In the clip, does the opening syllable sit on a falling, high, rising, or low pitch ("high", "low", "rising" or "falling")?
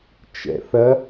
low